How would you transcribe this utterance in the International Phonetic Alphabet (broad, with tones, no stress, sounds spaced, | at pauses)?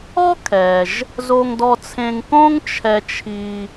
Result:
ɔ˥ kʰ ɛ˩ ʒ | z o˧ ŋ d ɔ˧ t͡sʰ ẽ˧ ŋ k õ˥ ŋ t͡ʃʰ ɛ˧ t͡ʃʰ i˧